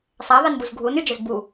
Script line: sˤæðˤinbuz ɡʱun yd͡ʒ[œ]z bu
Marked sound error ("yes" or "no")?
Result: no